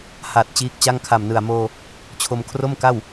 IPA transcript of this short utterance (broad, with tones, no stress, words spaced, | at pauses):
ha˨˩t̚ t͡ɕiː˦˥k̚t͡ɕa˥˩ŋ kʰa˨˩mnɯ˨˩a̯moː˧ | t͡ɕʰo˧mkʰro˥˩mka˥˩w